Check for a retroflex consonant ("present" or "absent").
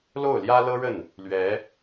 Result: present